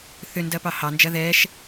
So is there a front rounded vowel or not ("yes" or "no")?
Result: yes